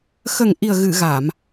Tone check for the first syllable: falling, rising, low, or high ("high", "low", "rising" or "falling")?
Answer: low